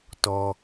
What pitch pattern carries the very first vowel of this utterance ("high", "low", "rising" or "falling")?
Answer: low